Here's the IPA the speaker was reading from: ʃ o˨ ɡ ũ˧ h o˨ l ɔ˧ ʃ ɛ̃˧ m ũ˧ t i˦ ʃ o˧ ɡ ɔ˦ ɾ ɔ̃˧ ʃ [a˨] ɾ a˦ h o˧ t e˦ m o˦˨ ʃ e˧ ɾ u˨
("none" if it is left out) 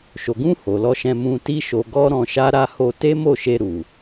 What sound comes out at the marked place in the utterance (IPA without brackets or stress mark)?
a˦